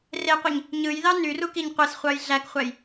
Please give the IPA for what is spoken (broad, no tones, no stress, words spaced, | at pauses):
reqʷiɲ | ɲɯjðɑ nyrukiɲ qʷesχʷɑj ɮækχʷæj